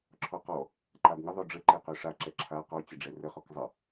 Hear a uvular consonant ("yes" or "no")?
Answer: yes